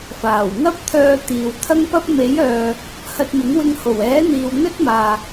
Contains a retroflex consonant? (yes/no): no